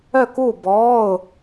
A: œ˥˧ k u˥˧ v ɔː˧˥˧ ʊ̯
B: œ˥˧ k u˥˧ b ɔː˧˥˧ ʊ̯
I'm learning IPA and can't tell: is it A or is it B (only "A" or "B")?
B